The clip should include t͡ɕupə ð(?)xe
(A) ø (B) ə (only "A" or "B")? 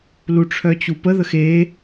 B